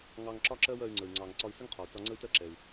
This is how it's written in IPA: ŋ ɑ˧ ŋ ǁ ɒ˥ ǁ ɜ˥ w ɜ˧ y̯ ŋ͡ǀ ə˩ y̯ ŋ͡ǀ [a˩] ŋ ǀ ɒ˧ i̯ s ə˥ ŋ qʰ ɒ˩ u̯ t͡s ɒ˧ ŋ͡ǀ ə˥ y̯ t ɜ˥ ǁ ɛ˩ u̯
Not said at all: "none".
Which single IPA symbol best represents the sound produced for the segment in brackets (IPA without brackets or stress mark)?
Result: ɑ˩